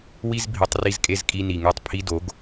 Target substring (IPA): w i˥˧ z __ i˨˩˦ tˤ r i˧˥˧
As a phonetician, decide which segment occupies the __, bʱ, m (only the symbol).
bʱ